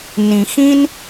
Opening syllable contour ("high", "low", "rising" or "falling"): low